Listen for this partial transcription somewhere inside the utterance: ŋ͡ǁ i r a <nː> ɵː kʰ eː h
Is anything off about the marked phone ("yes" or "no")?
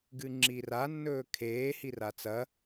no